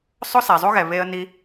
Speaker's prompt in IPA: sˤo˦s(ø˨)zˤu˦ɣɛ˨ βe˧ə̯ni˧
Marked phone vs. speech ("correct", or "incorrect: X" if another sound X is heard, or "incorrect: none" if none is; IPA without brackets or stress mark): incorrect: ɛ˨